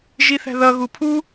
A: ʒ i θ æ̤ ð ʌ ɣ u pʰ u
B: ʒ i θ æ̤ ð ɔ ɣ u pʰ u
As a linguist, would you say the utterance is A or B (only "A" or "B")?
A